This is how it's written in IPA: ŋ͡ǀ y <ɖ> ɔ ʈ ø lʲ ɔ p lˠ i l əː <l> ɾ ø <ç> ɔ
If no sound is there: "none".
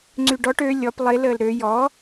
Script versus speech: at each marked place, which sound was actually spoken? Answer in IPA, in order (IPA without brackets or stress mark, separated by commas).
ɖ, l, j